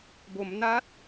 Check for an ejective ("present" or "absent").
absent